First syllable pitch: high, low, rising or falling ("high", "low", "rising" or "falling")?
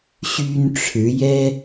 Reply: high